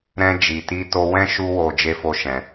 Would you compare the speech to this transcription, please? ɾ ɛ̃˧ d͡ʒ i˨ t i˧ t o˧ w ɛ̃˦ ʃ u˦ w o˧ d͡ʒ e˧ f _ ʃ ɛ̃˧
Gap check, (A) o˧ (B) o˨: A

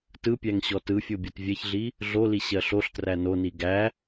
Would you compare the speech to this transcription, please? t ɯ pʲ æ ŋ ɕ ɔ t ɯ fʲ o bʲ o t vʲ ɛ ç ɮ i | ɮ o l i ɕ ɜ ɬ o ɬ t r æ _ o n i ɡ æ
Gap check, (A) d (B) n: B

